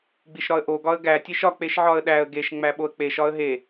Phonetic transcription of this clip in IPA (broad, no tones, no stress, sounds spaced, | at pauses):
ɡ͡b i ʃ ɾ ɒ ə̯ ʔ o ɡ ɒ ə̯ ɡ æ tʲ e ʃ ɒ k͡p e ʃ ʕ ɒ ə̯ ɗ æ ə̯ ɡ e ʃ ŋ͡m æ ɓ o ə̯ k͡p e ʃ ɒ ə̯ ɦ e